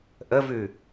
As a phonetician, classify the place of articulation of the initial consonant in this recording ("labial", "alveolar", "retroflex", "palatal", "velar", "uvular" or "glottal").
glottal